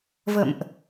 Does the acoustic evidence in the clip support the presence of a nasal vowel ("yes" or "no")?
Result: no